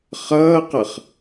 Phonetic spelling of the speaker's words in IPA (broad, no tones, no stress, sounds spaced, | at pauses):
χ ʌː q ʌ χ